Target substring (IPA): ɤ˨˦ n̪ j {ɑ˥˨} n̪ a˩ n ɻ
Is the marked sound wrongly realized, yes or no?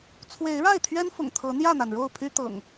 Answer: yes